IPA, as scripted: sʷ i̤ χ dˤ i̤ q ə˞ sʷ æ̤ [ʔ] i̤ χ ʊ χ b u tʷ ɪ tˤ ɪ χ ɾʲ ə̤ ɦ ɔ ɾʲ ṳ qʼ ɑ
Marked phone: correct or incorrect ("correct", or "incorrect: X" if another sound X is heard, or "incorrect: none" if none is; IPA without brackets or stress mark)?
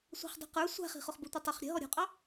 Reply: incorrect: χ